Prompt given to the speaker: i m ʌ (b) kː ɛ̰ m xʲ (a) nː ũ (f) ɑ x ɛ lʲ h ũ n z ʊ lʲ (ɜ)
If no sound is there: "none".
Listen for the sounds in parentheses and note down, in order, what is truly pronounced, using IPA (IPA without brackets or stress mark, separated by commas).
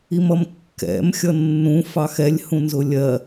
m, ʌ, f, ɜ